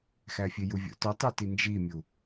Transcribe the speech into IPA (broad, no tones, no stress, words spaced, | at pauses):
xæfʲejuvʲo̰ tɒtˤuti nd͡ʒimʲu